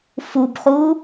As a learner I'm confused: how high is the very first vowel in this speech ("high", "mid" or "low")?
high